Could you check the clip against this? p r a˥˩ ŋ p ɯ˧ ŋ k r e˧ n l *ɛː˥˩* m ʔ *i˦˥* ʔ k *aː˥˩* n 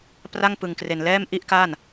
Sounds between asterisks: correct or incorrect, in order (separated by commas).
correct, incorrect, correct